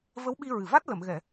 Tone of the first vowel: rising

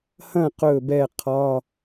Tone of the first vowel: falling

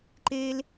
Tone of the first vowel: high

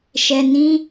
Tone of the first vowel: low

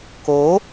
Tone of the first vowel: rising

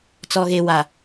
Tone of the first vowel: low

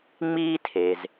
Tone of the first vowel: high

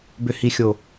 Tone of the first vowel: low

